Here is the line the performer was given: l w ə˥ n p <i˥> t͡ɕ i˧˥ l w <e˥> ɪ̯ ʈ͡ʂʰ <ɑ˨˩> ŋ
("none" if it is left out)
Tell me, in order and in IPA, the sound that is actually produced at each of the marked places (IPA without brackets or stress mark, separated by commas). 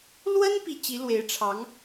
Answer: i˥, e˧˥, ɑ˧˥